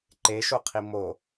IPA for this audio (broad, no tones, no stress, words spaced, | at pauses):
ǃeʃoqʰi mo